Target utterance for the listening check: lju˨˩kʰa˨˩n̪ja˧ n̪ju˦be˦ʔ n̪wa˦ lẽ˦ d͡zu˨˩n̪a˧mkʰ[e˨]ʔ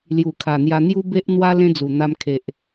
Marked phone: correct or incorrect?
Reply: correct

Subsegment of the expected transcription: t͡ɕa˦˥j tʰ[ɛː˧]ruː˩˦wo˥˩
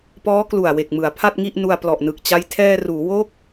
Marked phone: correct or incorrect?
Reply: correct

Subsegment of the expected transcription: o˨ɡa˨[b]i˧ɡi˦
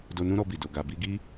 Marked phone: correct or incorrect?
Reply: correct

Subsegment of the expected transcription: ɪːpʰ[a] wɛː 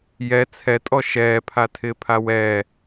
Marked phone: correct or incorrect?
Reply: correct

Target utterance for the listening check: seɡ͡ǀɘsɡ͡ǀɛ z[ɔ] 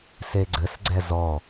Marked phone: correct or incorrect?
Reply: correct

